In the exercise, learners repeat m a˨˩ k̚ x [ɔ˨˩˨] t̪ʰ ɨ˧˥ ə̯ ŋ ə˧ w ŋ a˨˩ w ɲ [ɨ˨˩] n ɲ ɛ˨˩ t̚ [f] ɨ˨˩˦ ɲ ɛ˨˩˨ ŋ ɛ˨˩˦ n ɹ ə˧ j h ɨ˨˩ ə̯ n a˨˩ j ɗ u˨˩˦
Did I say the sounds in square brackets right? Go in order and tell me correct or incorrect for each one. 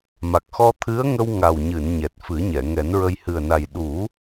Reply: incorrect, incorrect, correct

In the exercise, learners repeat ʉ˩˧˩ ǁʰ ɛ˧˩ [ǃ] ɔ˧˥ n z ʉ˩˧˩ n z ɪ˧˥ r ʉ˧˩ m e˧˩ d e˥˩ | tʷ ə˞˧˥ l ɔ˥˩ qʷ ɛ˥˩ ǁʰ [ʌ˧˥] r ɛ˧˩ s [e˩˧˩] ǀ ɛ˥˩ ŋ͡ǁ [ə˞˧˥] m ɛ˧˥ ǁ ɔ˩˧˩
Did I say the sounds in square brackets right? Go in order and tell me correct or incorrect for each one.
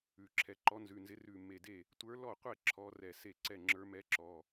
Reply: correct, incorrect, incorrect, correct

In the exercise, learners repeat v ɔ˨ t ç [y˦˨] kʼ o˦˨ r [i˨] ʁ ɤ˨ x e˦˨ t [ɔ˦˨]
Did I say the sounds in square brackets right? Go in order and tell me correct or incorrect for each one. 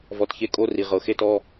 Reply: incorrect, correct, correct

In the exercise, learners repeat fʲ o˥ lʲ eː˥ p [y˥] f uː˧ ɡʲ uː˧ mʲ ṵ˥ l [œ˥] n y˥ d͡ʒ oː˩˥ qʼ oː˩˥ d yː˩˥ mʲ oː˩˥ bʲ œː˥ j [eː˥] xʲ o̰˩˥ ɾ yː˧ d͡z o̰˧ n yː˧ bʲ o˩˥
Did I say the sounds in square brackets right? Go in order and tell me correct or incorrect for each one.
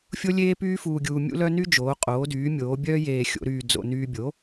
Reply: incorrect, correct, incorrect

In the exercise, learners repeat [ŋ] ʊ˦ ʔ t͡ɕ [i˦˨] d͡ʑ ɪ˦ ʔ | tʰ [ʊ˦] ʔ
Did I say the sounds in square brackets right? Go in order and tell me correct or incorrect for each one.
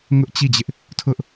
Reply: correct, correct, correct

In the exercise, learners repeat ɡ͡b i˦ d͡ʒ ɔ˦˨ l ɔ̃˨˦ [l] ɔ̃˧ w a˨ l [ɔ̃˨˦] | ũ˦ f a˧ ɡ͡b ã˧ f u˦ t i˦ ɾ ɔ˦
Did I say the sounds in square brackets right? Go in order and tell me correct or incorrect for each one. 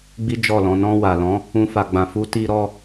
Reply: incorrect, correct

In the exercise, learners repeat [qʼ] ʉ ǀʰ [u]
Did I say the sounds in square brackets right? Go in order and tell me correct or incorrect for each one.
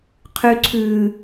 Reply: incorrect, incorrect

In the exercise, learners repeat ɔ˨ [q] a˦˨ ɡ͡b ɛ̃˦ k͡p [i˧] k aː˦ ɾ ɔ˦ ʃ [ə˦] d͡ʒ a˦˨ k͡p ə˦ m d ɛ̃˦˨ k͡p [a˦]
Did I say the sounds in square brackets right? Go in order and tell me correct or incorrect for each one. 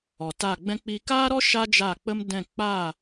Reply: incorrect, correct, incorrect, incorrect

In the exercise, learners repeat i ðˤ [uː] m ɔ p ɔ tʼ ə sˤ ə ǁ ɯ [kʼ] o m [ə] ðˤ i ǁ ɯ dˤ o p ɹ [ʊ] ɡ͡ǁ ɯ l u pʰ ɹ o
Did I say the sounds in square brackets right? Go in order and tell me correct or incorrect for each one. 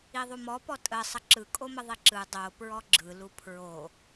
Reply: incorrect, correct, correct, incorrect

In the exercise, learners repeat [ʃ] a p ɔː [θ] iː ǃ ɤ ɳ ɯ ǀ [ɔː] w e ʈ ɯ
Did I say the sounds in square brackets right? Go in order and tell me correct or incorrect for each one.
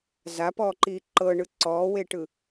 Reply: incorrect, incorrect, correct

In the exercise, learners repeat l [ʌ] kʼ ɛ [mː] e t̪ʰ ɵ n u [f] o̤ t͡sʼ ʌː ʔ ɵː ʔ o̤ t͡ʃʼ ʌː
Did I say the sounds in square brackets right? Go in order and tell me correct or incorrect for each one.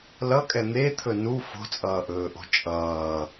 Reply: correct, incorrect, correct

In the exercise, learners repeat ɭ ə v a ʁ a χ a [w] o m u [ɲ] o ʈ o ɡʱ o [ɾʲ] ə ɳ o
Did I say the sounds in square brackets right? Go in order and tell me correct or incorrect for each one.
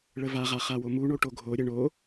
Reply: correct, incorrect, correct

